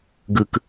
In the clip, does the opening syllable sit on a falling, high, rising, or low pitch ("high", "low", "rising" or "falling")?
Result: low